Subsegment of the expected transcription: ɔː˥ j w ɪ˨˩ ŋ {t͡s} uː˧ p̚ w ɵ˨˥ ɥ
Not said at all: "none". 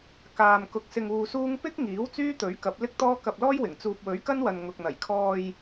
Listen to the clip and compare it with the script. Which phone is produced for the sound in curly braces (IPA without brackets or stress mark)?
t͡s